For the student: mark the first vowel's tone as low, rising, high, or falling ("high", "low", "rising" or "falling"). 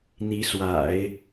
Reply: rising